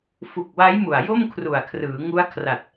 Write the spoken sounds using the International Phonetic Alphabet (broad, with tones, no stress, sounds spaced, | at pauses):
f u˨˩ k̚ w a˦˥ j m u˨˩ a̯ j o˥˩ m kʰ r u˨˩ a̯ kʰ r ɯː˩˦ ŋ u˦˥ a̯ kʰ r a˨˩ t̚